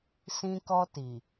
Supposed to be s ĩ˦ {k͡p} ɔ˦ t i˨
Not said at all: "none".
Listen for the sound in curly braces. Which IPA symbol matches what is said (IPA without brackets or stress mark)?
k